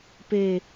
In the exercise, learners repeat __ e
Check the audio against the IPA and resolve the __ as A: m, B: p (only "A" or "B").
B